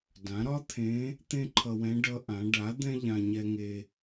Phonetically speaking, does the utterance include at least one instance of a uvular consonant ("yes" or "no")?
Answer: no